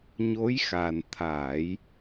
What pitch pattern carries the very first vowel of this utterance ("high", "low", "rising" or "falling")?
rising